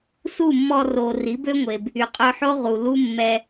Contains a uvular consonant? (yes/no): yes